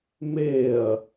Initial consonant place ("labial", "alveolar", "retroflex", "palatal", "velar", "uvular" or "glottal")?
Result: labial